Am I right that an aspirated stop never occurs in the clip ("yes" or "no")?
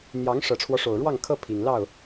no